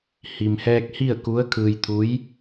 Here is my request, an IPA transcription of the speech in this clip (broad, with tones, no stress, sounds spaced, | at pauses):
h i˩ m h ɛː˧ k̚ h i˥˨ ə̯ k u˧˥ ə̯ kʰ ɯː˧ j t̪ʰ u˧˥ j